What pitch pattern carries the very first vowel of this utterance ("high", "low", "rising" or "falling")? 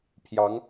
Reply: rising